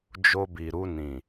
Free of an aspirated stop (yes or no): yes